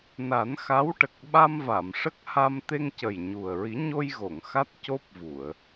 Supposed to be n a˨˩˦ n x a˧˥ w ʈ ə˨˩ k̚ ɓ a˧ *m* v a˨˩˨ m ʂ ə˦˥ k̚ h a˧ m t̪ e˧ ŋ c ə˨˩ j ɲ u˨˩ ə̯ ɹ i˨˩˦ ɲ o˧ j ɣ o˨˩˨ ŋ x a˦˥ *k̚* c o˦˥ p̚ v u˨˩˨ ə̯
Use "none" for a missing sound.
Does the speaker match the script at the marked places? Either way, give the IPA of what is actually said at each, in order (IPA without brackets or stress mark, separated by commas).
m, t̚